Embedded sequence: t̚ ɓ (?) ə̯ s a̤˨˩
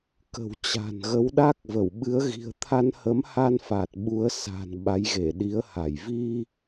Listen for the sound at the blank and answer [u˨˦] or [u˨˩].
u˨˦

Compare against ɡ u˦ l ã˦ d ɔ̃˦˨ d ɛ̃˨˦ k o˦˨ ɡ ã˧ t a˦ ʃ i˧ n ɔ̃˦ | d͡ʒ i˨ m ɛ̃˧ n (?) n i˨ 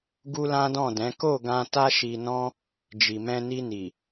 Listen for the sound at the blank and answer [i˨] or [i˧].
i˧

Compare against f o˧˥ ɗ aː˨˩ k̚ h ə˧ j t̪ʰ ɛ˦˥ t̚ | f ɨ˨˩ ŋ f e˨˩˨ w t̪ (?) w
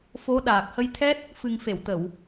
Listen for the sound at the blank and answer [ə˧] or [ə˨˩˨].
ə˨˩˨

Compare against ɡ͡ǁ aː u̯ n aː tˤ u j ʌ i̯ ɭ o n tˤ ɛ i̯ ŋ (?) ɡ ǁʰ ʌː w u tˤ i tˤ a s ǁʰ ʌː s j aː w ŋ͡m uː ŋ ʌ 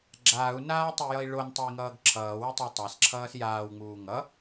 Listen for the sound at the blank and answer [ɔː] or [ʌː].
ʌː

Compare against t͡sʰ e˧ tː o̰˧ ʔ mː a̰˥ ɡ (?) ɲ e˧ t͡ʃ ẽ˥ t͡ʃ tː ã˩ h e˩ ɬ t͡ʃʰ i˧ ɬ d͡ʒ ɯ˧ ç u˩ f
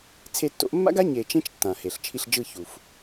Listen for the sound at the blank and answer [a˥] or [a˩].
a˥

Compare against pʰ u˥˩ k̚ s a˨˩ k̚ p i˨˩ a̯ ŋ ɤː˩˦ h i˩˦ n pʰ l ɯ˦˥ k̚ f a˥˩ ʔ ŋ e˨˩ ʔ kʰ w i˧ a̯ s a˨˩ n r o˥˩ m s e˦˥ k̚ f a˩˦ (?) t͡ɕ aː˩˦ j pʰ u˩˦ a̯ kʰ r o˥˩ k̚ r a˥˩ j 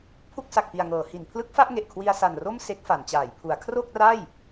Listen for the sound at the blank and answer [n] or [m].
n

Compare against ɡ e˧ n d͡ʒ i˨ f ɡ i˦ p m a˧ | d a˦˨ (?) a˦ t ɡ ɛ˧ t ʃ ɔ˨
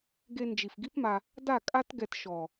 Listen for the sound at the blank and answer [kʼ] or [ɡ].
kʼ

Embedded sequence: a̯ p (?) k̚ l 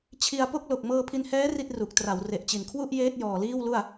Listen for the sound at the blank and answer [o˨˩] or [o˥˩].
o˥˩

